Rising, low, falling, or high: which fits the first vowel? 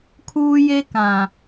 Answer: high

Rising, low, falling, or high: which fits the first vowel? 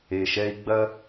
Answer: low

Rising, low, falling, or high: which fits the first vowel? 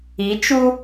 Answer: rising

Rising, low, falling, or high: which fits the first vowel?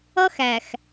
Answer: high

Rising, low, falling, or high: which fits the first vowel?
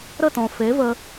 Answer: falling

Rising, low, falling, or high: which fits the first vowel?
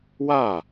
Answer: falling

